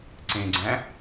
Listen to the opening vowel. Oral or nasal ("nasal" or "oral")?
nasal